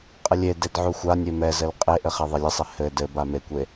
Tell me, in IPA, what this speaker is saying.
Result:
qʼɘlʲeded ʕuxʷanʲe mɛzɘl qʼeʔɘ χɛðˤelʲɘsˤɛ hɘ dɘba mekʷe

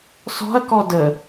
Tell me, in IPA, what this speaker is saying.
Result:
sɔ̤ɐ̯kɔ də

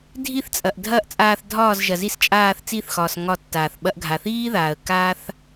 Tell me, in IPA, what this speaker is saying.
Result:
dʱi˦˨θt͡sʼɐ˨ʔ dʱɐː˦ʔt͡sʼaː˧θ dʱɒː˦˨zʒɐ˨zi˦˨s t͡ʃʼaː˦˨θt͡si˦˨θxɒː˨s ŋɒ˦˨tːaː˨θ ɓɐ˧ʔɡʱa˨θiː˦ðaː˨ə̯ kaː˦θ

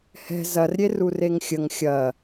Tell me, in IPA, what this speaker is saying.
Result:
hɛ̤ zɐrɾʲerureŋ xʲəŋ xʲɐ

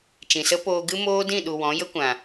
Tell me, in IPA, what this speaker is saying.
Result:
t͡ʃĩ˨sə˦poː˧ ɡɨ˦moː˦dĩ˦˨ɗu˨ wɔ̃˨˦jə˦kʷã˨

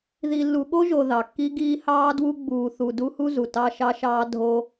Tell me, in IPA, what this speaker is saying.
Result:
ði˨lːu˨ɠo˦ʒo˨ ðɑ˨kːi˦ ɡiː˦hɑː˦dwu˦ ɡ͡buː˨ θu˨ du˦hu˦zu˨ tɑ˦ʃɑ˦ʃɑː˦ dʱo˦

